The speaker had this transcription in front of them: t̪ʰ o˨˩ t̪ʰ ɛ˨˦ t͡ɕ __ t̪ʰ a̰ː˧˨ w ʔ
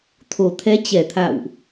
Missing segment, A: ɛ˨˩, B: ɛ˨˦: A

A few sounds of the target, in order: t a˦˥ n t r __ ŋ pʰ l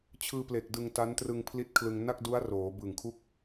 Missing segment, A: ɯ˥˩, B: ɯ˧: B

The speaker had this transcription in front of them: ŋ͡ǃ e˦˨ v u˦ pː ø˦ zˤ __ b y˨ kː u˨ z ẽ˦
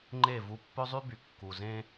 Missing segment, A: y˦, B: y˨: A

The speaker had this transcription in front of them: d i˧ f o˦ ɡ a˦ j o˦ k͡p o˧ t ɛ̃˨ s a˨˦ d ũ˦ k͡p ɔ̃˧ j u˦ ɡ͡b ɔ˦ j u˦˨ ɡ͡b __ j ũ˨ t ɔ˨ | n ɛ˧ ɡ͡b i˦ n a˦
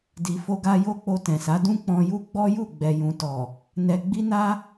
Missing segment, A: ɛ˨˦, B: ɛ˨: B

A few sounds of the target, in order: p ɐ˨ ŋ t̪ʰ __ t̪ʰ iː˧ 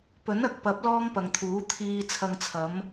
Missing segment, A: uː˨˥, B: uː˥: A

